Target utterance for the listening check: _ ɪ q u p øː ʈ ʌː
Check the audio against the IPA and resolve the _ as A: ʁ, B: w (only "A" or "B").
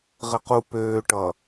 A